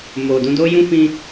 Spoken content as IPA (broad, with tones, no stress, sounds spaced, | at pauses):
m o˨ d ũ˧ d o˦ j ũ˦ f ĩ˦